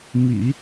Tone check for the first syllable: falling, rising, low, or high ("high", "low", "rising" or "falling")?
low